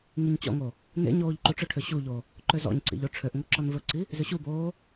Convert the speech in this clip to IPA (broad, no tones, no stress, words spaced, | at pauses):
ŋiɲt͡ɕɔ̰ŋo | nḛ ɲoːʎǃuʈ͡ʂɵʈʰø ɕuʎo | ǃøzɔ̰ɲǀḭʎ oʈ͡ʂʰøʔŋo ǁɔnvɵǀi | zøɕuboː